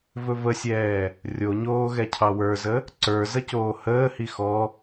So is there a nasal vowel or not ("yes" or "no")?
no